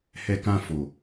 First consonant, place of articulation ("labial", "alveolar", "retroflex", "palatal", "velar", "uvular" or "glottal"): glottal